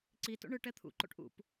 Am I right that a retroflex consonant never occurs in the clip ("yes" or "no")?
no